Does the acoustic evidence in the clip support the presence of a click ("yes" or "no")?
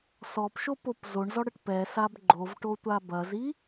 yes